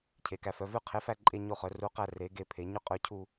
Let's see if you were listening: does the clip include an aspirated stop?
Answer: yes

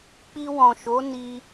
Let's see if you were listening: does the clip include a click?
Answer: no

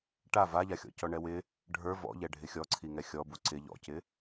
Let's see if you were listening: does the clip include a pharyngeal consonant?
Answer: no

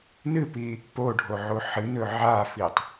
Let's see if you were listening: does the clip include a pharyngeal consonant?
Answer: yes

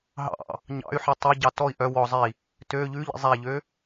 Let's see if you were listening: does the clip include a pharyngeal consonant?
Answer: yes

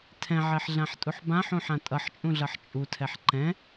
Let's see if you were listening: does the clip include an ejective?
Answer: yes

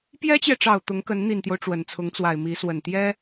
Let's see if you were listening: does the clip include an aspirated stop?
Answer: yes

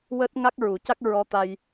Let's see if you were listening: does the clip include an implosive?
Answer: no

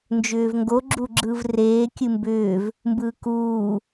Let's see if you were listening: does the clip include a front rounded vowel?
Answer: yes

